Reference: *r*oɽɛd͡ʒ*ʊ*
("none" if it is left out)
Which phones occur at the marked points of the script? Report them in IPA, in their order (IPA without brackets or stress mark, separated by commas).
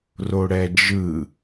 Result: r, ɯ